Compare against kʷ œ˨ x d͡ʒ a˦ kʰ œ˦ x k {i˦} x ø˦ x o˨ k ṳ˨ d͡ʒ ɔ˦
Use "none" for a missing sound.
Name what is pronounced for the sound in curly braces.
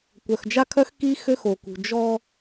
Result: i˦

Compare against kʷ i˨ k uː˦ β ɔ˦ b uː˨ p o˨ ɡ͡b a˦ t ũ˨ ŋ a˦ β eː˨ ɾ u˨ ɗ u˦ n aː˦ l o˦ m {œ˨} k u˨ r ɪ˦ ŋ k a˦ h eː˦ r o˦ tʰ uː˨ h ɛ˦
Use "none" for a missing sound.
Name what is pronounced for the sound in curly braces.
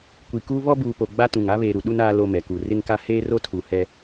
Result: ɛ˨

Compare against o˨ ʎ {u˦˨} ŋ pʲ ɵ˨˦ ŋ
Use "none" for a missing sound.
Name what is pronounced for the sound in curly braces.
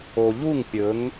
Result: u˦˨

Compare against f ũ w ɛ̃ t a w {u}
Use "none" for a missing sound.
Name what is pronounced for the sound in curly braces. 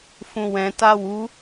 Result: u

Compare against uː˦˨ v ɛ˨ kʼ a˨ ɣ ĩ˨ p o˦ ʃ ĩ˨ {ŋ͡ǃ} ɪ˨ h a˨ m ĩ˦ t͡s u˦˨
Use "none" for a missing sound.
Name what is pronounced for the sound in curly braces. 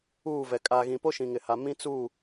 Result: ŋ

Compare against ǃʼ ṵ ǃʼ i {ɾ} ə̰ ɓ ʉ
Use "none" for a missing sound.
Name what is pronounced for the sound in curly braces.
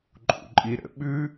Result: ɾ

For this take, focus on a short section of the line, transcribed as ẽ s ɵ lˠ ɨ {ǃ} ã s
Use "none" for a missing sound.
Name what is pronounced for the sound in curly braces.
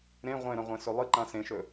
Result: ǃ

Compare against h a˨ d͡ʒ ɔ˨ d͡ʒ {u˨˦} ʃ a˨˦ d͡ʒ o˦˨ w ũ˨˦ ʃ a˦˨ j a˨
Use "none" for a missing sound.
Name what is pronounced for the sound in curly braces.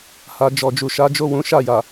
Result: u˨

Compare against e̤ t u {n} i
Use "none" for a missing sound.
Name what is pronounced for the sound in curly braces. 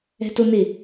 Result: n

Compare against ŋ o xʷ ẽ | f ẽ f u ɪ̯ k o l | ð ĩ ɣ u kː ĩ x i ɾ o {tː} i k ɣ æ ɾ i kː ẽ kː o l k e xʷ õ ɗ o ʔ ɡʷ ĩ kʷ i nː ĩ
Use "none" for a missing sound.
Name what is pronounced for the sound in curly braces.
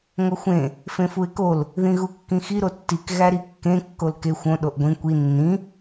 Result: tː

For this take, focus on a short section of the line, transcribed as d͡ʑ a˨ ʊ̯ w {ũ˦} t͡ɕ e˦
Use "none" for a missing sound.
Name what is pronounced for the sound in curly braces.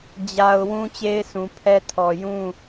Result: ũ˦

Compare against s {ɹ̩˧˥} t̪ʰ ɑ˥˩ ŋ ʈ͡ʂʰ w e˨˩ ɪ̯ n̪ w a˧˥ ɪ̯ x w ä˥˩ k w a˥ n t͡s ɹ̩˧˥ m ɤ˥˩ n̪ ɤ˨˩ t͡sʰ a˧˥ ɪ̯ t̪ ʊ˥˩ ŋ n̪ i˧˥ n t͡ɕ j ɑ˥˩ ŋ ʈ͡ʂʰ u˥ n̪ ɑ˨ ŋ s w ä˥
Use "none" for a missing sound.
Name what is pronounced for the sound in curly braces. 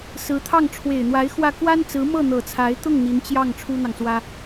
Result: ɹ̩˧˥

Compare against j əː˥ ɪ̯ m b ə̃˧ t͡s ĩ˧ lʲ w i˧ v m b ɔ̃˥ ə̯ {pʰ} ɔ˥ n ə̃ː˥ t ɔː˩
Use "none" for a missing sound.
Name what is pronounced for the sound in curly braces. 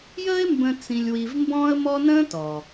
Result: m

